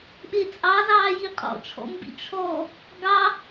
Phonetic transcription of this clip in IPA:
ɓ e t͡sʼ ɑ z ɑː j i qʼ ɔ̰ t͡ʃʰ ɔ̰ m b ḭ t͡ʃʰ ɔ | ɡ ɑ

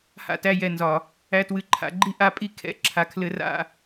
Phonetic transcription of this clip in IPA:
h a̰˧ t æ˧ j ɛ˨ n z ɒ˨ | æ˧ t w ɨ˨ ǃʰ a̰˨ ɡ͡ǃ i˦ ʔ a˦ pʼ i˦ kʰ ɛ̰˧ ǁʰ a˨ kʰ l ɘ˧ r a̰˦˨

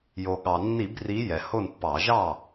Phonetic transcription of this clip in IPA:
j o˩ ɠ ɑ˩ nː i˧˩˧ b r i˨˦ j ɛ˩ h o˥˨ n pː ɑ˧˩˧ ʒ ɑ˥˨

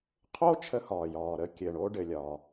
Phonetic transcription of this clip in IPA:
qʰ o˥ t͡ʃʰ ə˥ h ɒː˩ j ɒː˩ ɾ ə˥ kʲ ɘ˩ ɳ o˥ ɖ ɘ˩ lʲ ɒ˩

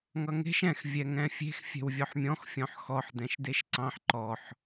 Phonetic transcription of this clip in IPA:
ŋ ʌ ŋ e̤ ʃ ɛ̃ x vʲ ɛ ŋ ɛ̃ fʲ e̤ x fʲ ɛ̤ w vʲ ɔ ħ mʲ ɔ̃ x fʲ ɔ̃ ħ x ɔ ħ d ɛ̃ ʃ d e ʃ ǀ ɑ̃ ħ ǃ ɔ ħ

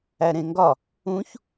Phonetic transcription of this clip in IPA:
æ ɾ ẽ ŋ ɡ ɒ | ũ ç

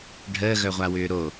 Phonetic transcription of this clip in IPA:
ɖʱ əː ɣ œ ʁʷ a w ʏː ɾ o

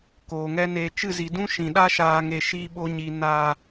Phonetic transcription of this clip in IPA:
k oː˨ ŋ ɛ˦ n eː˧ t͡ʃ ɨ˦˨ z i˨ d ũ˦ ʃ ĩ˨ ɗ a˦ ʃ aː˨ ŋ e˨ ʃ i˧ ɓ o˧ ɲ i˨ n aː˨

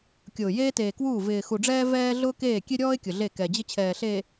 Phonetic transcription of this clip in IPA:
kʲ ʊː˨ j eː˦ t eː˨ k w uː˦˨ v ɪː˨ x u˨ ɖ͡ʐ ɛː˦ v ɛː˦ ɮ ʊː˦ k eː˦˨ kʲ e˦ ɾʲ ɔː˦ ɪ̯ kʲ ʊ˨ ɮ e˦˨ k ɛ˨ d͡ʑ ɪ˦ t͡ɕʰ ɛː˨ ɬ eː˨

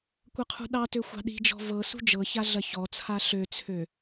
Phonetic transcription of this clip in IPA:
kʷ ɐ qʰ ṳ ɗ ɑ t ø xʷ ɑ̤ ɗ i̤ d͡ʒ ɔ̤ v ɤ s ṳ d͡ʒ ɤ ç a ɮ ɐ ç ɔ t͡sʰ a ɬ ø t͡sʰ ø

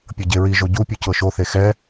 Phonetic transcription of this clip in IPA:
pʲ ɤ ɟ e ɹ i ʒ o ɟ u pʲ u c ɤ ʃ o θ e x ɛ

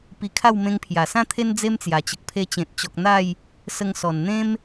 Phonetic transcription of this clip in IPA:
p i˧ kʰ a˥˧ w m ẽ˧ ŋ pʰ j a˨˩ s ã˥˧ t̪ʰ e˧ n d͡z e˦ m t͡s j a˨˩ t͡ɕ ə˨ k̚ pʰ e˧ t͡ɕ ẽ˨ t̚ t͡ɕ ɔ˨ k̚ n̪ a˥˧ j | s ə˧ ŋ s ɔ˨˩ n n̪ ẽ˦ m

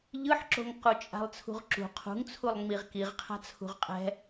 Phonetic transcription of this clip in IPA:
ʎ ɯ ħ ǁ o̤ ŋ q u t͡ʃʼ a̤ lˠ t͡sʰ ṳ ʁ ǁ ṳ qʰ ṳ ŋ t͡sʰ u lˠ ŋ͡m i ʁ k i ʁ qʰ a̤ t͡sʰ ṳ ʁ qʼ ɛ̤

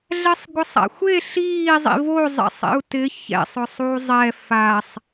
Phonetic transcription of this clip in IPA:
ɮ ɛ sˤ ɡʷ ɪ sˤ a̰ xʷ e ɬ iː zˤ ḭ v o zˤ ɛ̰ sˤ ḛ u̯ t ɪ ç ɛ̰ sˤ ʊ sˤ uː zˤ ɛ f a sˤ

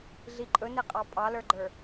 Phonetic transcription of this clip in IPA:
ɮ i ǃʼ ɵ n e qʼ ɑ pʼ ɑ l ə˞ ɡ͡ǃ ə˞

